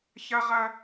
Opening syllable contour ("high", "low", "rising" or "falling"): high